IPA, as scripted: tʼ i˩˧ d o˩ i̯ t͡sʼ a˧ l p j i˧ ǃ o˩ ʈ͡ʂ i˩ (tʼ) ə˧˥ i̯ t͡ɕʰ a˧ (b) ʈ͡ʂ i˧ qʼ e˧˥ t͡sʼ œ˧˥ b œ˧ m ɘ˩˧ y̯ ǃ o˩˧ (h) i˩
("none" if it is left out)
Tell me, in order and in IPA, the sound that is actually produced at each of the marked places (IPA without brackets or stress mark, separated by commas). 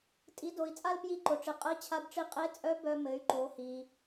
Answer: qʼ, b, h